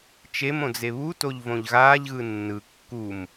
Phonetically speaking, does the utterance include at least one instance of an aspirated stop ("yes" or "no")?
no